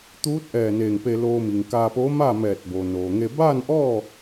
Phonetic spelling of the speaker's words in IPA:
t̪ uː˧˥ t̚ ʔ ɛː˧˩ n eː˧˩ ŋ p e˧ l oː˧ m i˩ ŋ k aː˧ p oː˧˥ m aː˥˨ m ɛː˧˩ t̚ b o˩ n oː˩ ŋ e˧ b aː˥˨ n ʔ ɔː˥˨

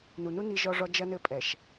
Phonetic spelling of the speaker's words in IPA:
n u˨ n u˦ n i˦ ʒ ɔ˦ ʐ ɔ˦ d͡ʒ ɐ˦ n ɘ˦ pʼ ɛ˨ ʃ

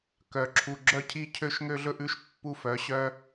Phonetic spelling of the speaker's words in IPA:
k œ˨ ǁʰ u˨ ɡ͡ǁ œ˦ cʰ i˦ cʰ ø˦ ʃ ŋ ø˦ ɮ ɵ˦ ʔ ʉ˦ ʃ pː u˦˨ f œ˨˦ ɕ œ˦

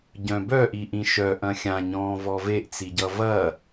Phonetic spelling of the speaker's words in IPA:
ɟ œ̃ b œ ʔ i ʔ ĩ ʃ œ ʔ ɐ̃ xʲ ã ɲ ɔ̃ː v ɔ v e ʔ t͡s i ɟ ʌ v ɐ

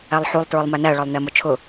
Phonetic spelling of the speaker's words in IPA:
æ lˠ ħ u lˠ t ɹ ʊ lˠ m æ n æ ɭ ɒ lˠ n ɛ m ʊ t͡ʃʰ ʊ

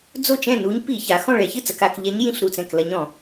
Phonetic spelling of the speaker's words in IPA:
d͡z o˥˩ t͡ʃ ɛ̃˥˩ n u˧˥ ɲ p i˧˩˧ ç a˩˧ x ɔ̃˥˩ ɭ ɛ˧˩˧ ç ɨ˥˩ t͡s ɐ˩˧ k a˩˧ k ʎ ɛ˧˥ ɲ j ĩ˥˩ ɬ ɾ u˥˩ t͡s ɛ̃˥˩ k l ɐ˧˥ ɲ ɔ̃˧˩˧

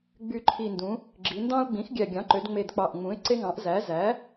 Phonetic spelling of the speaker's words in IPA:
ɡ͡b y˨˩ ǃʰ i˨˩ n d ũ˩˧ | ɡ͡ǁ i˩˧ n d ɑ̃˦ ʊ̯ ɡ͡b ĩ˩˥ x ɡʲ æ˨˩ ɡʲ ɑ̃˩˥ ǃ ø˩˧ d ŋ͡m e˨˩ d k͡p ɑ˨˩ ʔ ŋ͡m ũ˩˥ ɪ̯ ǀ e˦ ŋ ɑ̃˩˥ ʔ z æ˩˥ z æ˩˥

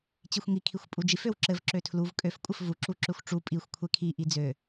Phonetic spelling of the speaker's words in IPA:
t͡ɕ i xʷ ŋ i kʰ i xʷ pʼ u d͡ʒ i f ø w ǁ ɘ v ǁ ø tʰ l u v kʼ ø f kʷʼ ɘ f v u ǁ u ǁ ø xʷ ʈ͡ʂ u pʼ i xʷ kʷʰ e kʰ i ʔ i d͡z ø

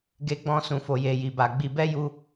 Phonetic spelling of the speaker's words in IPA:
ɡ e˧ ɡ͡b ɔ̃˧ s ũ˨ f o˨ j e˨ j i˨ b a˨ ɡ͡b i˨ b ɛ˧ j u˧

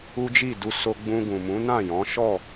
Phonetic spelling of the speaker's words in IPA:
u˦ d͡ʒ i˦˨ d u˧ s o˧ ɡ͡b ũ˧ ɡ ũ˨ m ũ˨˦ n ã˦˨ j ɔ̃˨˦ ʃ ɔ˦˨

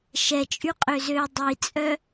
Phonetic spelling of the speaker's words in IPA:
ʃ ɛ t͡ʃʼ y qʼ ø z ø dˤ i t͡sʼ œ

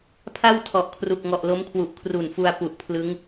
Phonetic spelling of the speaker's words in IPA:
pʰ a˥˩ w tʰ ɔ˨˩ ʔ kʰ r u˨˩ k̚ ŋ ɔ˨˩ ʔ l o˦˥ m kʰ w u˨˩ ʔ kʰ r u˨˩ n f u˧ a̯ p u˨˩ ʔ pʰ l ɯ˦˥ ŋ

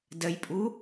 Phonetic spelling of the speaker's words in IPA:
d ə j pʼ u

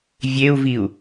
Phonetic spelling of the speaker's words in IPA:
vʲ e u̯ v i u̯

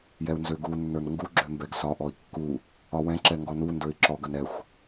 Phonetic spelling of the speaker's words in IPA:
j ɛ u̯ n z ø ɡ u nː ə˞ n ŋ ɡ u ɡ͡ǁ ø m b ɛ ɡ s ɒ ʔ ɔ i̯ kː u | ɒ w ɛ̃ ǁ ɛ ŋ ɡ ɔ n u n d ə˞ i̯ ǁ ɔ ɡ ɐ n ɛ xʷ

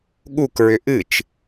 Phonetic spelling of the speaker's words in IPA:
ɠ u k ɹ ʏ ʔ ɨ t͡ʃ

